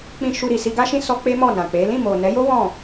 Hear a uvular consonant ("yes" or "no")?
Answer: no